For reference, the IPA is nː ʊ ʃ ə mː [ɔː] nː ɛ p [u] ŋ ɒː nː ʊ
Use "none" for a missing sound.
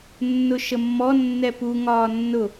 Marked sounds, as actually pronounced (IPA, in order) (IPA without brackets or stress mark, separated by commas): ɔ, u